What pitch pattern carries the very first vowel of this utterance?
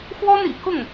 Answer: high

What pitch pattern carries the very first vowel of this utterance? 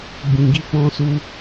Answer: low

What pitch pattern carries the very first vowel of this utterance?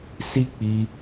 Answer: high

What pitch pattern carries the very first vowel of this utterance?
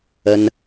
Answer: high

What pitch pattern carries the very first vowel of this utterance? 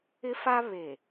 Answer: high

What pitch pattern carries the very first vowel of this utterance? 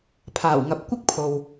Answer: low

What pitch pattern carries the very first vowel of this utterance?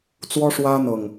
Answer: high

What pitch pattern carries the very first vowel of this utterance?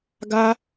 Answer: high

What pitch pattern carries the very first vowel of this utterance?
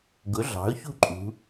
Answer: rising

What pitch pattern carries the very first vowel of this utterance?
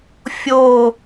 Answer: falling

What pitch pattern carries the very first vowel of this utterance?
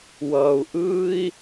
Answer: low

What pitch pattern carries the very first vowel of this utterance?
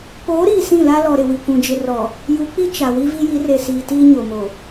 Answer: rising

